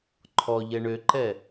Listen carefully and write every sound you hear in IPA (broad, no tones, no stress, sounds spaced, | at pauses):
ǃʰ ɔ ʎ ɛ ɳ ø ǃ ɛ